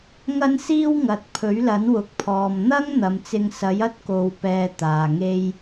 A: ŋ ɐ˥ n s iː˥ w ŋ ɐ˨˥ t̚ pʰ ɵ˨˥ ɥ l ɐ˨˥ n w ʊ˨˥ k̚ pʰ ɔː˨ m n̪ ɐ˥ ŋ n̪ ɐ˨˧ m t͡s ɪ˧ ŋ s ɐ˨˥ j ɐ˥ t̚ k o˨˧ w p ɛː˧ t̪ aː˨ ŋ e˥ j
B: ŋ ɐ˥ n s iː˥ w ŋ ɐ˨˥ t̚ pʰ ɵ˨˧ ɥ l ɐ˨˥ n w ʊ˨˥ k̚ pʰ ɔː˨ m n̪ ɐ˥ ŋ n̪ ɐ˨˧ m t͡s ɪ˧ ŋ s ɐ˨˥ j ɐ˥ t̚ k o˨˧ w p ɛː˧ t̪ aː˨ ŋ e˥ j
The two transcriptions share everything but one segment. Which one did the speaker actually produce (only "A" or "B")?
A